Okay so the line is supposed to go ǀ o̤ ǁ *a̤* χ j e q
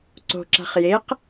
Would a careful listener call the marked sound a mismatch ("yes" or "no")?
no